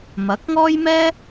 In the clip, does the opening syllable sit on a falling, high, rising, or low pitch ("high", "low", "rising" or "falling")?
rising